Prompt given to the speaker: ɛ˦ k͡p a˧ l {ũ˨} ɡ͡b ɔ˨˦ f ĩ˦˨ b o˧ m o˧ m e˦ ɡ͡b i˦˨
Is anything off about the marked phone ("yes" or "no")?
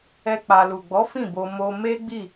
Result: yes